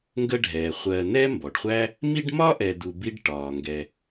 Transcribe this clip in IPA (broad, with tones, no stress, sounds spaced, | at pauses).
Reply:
ŋ ɡ ə˦ ɖʱ ɛː˩ χʷ ɜː˨ n ɛː˥ m b ɔ˩ ɖ χʷ æ˥ | m i˦ ɖ m ɒ˥ ʔ ɛ˨ d u˨ b i˥ ɖ ʈ ɒː˩ ŋ ɡ ɛ˨